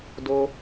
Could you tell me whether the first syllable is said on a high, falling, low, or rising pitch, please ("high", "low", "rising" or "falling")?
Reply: high